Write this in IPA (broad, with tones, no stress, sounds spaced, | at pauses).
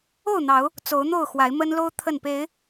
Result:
o˥˨ ʊ̯ n̪ ɑ˨˦ ʊ̯ | t͡s o˨˦ ʊ̯ n̪ o˥˨ ʊ̯ x w a˨˦ ɪ̯ m ə˦ n l o˦ ʊ̯ t̪ʰ ə˥˨ n p e˨˦ ɪ̯